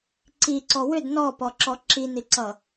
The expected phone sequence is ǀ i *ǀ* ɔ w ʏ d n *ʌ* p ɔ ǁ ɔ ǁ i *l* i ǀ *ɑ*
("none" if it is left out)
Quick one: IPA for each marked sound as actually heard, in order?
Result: ǀ, ɔ, n, ʌ

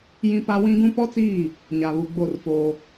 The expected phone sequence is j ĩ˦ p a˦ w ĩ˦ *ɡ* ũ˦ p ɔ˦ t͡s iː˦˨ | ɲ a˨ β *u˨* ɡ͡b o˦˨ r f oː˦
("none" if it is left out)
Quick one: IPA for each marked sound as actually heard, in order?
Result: ɡ, u˨

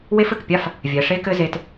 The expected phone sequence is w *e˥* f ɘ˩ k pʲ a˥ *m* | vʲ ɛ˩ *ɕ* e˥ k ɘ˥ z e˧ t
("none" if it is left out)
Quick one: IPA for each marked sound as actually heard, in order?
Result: e˥, f, ʂ

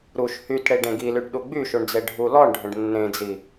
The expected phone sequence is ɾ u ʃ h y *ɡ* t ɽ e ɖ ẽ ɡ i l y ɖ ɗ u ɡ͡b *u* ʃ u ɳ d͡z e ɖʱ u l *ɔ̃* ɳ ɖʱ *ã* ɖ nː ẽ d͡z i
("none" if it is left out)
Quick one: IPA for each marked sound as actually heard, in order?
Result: none, y, ɔ, ə̃

